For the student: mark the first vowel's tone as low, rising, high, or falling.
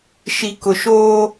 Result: low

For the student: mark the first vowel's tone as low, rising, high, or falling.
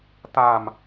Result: low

